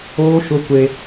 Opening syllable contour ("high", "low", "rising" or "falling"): high